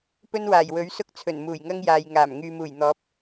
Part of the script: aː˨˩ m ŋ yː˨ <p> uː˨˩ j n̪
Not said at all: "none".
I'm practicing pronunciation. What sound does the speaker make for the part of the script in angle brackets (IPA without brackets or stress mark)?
m